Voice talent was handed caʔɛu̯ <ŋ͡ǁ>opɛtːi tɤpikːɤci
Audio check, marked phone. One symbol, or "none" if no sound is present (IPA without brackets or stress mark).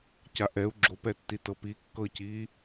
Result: ɡ͡ǁ